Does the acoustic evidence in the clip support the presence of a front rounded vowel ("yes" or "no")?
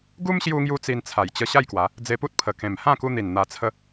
no